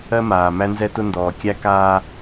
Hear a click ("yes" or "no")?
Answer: no